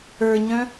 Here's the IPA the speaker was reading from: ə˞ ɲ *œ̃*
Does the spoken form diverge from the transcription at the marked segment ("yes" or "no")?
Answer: no